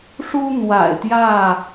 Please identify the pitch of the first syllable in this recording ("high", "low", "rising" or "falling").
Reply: high